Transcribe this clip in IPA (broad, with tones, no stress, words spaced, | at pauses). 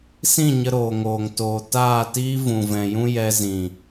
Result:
sĩ˦˨ɲə˧ɾoː˨ ŋoː˨ŋtoː˨ taː˦˨tiː˦ vũ˨vɛ̃˨jũ˦ jɛ˧zĩ˨